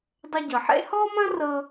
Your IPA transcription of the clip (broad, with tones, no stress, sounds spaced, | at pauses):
dˤ ə˧ ɟ ɤ˩ ħ ḛ˥ h ɔ˥ m ɐ̃˥ r ɤ˧